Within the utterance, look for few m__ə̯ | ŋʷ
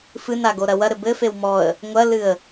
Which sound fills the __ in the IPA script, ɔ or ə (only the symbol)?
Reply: ɔ